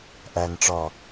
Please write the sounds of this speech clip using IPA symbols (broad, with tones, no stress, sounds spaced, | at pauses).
ʔ æ˨ n ʈ͡ʂ ɔ˨